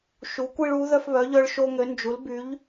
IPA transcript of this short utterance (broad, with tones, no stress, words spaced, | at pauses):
ʃu˨˦kʷi˦ɭu˨˦ ðœ˦fβœ˨˦ʎœ˦ɭ ʃo˦ŋø˨˦nd͡ʒu˨˦lby˨˦ʎ